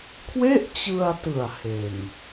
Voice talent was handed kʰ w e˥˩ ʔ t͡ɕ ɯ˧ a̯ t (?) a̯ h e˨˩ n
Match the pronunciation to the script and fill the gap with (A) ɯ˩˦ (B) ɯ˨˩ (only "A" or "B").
B